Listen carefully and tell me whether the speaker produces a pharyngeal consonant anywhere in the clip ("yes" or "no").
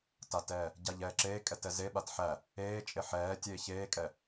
yes